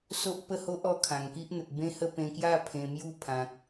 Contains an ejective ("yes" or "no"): no